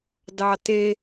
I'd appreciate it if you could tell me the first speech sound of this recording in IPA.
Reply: d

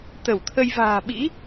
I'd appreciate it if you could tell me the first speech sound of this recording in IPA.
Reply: t̪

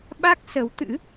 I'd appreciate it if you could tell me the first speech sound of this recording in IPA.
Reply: ɓ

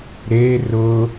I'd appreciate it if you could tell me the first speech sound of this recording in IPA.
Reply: ɾ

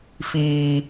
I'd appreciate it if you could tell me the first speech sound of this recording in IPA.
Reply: f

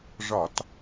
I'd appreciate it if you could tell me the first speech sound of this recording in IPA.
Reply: ʐ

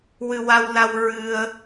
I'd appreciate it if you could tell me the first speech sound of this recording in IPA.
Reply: w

